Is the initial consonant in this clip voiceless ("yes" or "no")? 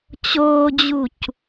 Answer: yes